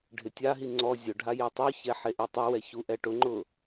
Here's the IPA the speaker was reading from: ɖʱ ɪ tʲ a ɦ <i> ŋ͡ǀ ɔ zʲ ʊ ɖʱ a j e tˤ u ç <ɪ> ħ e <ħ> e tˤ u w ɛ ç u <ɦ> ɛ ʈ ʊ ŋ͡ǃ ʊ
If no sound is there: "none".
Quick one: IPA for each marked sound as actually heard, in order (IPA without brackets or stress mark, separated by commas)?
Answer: i, ɛ, ʔ, ʔ